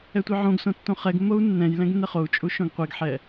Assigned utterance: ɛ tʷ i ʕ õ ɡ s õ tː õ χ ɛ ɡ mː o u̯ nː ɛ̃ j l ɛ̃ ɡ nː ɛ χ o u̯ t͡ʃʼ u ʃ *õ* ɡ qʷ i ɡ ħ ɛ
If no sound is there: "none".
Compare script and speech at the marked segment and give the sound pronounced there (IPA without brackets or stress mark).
õ